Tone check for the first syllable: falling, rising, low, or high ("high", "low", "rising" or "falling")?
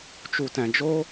low